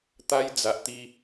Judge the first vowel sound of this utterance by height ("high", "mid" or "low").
low